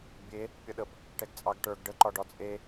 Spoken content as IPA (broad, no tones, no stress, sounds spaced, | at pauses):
bʲ e | pʲ ʌ ɗ ə b | ʈ ɛ ɡ t͡sʼ ɑ ɡ ʈ ə˞ ɡ ɖ ə ǃ ɒ ɖ ɒ t͡sʼ e